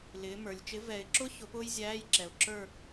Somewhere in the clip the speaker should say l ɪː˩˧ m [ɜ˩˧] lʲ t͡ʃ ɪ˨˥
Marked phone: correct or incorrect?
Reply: incorrect: ə˞˩˧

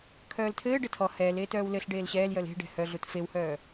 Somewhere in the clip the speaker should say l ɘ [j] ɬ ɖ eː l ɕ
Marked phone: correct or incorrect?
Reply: incorrect: none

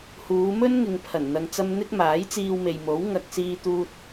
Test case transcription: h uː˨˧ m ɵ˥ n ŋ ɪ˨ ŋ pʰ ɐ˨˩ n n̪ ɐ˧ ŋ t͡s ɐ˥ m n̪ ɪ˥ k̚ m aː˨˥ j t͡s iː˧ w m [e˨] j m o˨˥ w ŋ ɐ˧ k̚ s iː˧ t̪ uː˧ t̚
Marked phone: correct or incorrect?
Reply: correct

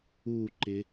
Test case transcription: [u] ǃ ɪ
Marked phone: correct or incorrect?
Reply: correct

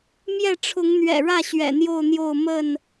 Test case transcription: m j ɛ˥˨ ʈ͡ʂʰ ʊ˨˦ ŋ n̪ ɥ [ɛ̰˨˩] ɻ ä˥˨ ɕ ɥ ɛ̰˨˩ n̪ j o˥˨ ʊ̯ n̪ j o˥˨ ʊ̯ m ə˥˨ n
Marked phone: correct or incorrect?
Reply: correct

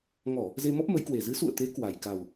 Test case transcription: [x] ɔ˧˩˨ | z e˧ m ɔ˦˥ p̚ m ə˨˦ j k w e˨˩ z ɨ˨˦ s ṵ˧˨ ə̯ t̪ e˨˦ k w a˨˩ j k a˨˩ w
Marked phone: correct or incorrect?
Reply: incorrect: ŋ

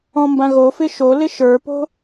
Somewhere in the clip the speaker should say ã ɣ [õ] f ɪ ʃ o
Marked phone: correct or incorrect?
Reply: incorrect: o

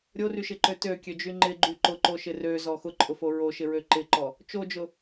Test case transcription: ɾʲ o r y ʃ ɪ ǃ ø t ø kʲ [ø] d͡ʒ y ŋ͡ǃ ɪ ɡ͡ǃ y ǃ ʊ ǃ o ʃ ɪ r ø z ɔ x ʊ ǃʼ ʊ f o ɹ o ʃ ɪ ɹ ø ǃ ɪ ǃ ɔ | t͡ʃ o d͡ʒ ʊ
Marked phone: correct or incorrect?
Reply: correct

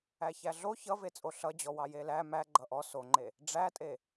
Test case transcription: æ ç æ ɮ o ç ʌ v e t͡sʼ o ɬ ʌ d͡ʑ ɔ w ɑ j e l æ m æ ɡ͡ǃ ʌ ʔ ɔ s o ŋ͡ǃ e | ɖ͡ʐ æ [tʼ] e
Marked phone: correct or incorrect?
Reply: correct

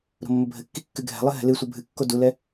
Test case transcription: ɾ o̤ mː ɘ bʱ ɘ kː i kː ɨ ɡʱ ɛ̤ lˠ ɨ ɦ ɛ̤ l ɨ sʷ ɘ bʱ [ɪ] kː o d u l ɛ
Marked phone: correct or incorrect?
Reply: incorrect: ɨ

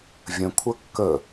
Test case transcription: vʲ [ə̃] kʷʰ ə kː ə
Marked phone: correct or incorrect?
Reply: correct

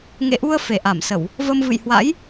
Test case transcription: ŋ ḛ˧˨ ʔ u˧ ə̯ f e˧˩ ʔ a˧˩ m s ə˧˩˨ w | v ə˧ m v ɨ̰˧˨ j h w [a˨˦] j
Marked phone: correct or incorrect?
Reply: incorrect: a̰˧˥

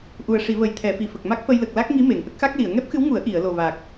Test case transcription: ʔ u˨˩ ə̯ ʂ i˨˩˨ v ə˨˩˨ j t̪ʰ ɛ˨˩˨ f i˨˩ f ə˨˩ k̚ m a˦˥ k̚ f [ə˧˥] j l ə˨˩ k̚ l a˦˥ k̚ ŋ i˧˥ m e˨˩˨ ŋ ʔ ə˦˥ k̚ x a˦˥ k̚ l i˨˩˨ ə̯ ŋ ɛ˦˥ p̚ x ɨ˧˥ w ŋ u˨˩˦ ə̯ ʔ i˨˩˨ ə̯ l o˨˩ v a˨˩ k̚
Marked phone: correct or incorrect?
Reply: incorrect: ə˧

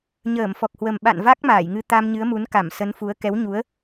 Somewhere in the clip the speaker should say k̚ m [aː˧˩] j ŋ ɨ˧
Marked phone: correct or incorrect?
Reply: correct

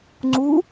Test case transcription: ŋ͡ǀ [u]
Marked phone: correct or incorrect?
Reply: correct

